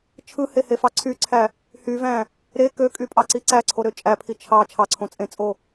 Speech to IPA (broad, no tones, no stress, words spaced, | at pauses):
t͡ʃʰɯhehefɑ ǀʰyǀʰæ | hyvæ̃ | ɾe køkʼypʼɑǀi ǀæǀʰoɾø t͡ʃʼæpʰi t͡ʃʰɑ t͡ʃʰɑǀʰõt͡sʼẽt͡sʼo